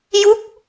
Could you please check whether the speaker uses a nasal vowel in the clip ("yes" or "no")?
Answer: no